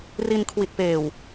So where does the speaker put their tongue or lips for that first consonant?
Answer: tongue tip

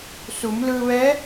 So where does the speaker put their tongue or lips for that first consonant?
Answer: tongue tip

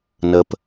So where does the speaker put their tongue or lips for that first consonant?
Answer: tongue tip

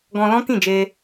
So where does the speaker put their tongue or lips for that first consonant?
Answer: velum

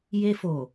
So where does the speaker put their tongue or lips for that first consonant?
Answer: palate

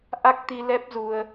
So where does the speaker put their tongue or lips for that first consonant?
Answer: throat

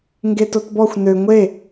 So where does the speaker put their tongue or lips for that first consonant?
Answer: velum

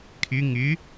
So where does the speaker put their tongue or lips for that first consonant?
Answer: velum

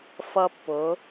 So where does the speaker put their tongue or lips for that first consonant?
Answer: lips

